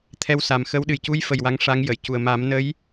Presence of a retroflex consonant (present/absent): present